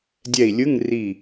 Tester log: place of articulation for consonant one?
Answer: alveolar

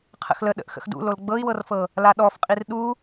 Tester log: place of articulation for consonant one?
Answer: uvular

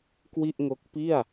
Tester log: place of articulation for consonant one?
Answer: velar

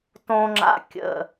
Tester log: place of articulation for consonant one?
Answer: alveolar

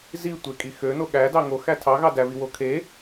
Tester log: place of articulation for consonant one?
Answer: alveolar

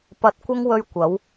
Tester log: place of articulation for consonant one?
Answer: labial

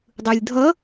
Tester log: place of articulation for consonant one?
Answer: alveolar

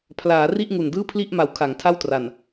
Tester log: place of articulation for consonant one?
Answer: labial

